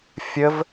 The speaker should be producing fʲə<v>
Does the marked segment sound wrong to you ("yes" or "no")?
no